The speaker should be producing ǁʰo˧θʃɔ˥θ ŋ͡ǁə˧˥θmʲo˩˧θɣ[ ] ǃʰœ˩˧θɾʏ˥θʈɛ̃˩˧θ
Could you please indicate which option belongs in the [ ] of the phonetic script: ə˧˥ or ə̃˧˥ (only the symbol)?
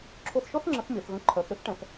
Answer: ə̃˧˥